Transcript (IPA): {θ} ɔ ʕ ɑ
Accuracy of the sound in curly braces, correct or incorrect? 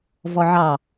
incorrect